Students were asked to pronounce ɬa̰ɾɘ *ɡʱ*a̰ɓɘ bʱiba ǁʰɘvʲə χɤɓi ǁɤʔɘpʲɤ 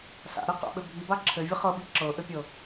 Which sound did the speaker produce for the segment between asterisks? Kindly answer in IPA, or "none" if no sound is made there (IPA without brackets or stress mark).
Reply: q